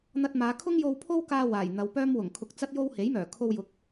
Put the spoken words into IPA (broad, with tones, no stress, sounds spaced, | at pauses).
n̪ ɐ˧ t̚ m aː˨˧ kʰ ʊ˥ ŋ j o˧ w pʰ o˥ w k aː˧ w aː˨˩ j n̪ ɐ˨ w p œː˥ m w ʊ˨˩ ŋ kʰ ʊ˧ k̚ t͡s ɐ˥ t̚ j o˥ w h e˨˥ j m œː˨˩ kʰ o˧ w j ʊ˨˥ k̚